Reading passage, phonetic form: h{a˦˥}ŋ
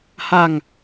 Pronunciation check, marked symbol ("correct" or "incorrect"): incorrect